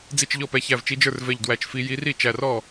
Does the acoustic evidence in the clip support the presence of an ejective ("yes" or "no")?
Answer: no